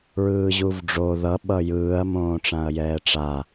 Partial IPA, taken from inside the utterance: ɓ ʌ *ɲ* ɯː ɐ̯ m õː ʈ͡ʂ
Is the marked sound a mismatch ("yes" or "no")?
yes